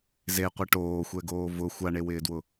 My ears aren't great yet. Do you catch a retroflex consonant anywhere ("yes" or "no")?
yes